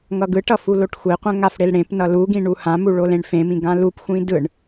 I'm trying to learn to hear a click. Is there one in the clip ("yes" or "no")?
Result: no